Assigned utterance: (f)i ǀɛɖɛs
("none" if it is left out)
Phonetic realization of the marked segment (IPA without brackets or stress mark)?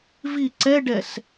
v